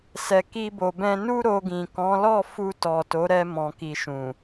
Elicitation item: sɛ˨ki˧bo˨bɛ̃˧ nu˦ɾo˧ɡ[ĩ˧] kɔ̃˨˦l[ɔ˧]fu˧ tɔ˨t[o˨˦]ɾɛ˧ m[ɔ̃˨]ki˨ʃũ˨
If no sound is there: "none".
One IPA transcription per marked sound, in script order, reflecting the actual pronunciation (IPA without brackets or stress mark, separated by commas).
ĩ˨, ɔ˦˨, o˨˦, ɔ̃˨